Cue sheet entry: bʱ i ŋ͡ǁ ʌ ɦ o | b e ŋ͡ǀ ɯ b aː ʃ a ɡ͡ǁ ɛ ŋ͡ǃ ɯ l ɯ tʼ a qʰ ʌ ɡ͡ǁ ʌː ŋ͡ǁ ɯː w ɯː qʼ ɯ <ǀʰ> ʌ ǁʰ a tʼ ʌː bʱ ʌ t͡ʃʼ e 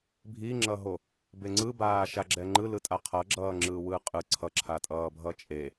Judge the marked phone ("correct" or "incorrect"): correct